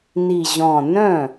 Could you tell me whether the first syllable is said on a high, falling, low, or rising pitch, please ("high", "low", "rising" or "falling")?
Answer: low